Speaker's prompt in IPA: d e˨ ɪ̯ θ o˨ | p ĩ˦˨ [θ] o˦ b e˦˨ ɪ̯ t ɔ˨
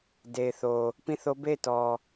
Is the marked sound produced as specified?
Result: yes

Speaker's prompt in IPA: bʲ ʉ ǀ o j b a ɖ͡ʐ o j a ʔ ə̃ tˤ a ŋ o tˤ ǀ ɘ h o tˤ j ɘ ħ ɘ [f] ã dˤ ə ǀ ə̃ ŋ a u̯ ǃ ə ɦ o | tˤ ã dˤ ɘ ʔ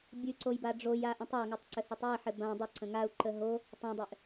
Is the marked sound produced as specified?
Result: no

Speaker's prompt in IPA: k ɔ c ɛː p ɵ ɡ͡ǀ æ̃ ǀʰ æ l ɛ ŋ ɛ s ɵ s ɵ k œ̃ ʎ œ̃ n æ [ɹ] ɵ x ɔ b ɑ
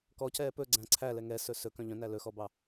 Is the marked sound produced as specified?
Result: no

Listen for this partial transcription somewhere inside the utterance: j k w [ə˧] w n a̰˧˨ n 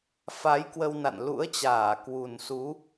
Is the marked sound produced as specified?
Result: yes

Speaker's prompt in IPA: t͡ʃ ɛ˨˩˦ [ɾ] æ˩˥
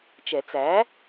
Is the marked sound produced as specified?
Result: no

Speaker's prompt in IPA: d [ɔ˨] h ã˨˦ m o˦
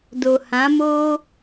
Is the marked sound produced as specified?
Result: no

